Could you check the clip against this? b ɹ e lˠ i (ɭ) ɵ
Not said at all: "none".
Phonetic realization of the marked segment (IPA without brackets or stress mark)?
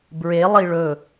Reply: ɭ